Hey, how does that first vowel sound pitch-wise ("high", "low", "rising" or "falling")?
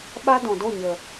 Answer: high